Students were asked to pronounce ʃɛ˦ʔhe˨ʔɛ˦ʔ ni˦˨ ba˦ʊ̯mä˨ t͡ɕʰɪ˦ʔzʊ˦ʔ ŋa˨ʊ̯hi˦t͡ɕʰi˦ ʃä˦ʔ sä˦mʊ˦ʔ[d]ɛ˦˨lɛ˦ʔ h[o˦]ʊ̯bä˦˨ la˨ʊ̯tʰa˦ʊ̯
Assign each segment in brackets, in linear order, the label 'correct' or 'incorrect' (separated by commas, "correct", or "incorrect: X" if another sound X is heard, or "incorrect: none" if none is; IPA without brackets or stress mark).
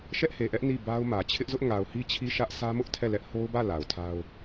incorrect: tʰ, correct